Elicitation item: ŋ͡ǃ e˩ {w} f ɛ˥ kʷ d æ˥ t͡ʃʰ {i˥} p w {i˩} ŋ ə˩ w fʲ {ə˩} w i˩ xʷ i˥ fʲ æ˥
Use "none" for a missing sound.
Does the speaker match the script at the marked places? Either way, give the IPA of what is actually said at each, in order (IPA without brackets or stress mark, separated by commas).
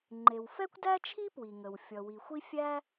w, i˥, i˩, ʌ˩